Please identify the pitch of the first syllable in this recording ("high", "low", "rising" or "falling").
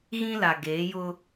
high